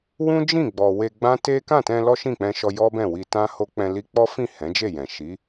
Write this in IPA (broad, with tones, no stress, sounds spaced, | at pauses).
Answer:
w ũ˦ d͡ʒ ĩ˦˨ ɡ͡b ɔ˨ w e˧ ɡ͡b ã˦ t e˦ k ã˦˨ t ɛ̃˧ l ɔ˦ ʃ ĩ˦˨ k͡p ɛ̃˧ ʃ ɔ˧ j ɔ˦ b ɛ̃˦˨ w i˧ t ã˦ h o˦ k͡p ɛ̃˧ l i˧ k͡p ɔ˦ f ĩ˦˨ h ɛ̃˨˦ d͡ʒ e˦˨ j ɛ̃˨ ʃ i˨˦